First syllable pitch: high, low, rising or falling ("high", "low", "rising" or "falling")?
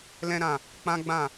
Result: high